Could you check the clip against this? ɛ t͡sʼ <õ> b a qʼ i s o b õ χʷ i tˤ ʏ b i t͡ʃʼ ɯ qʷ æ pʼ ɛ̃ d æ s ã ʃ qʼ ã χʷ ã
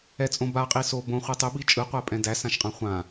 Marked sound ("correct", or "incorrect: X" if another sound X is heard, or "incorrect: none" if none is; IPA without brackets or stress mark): correct